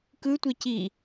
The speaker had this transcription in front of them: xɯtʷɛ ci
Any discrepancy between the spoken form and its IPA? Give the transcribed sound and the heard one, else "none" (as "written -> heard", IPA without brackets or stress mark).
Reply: x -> k